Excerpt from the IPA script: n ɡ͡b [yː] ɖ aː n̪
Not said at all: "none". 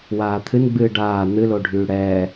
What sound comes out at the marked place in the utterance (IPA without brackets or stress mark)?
ɨː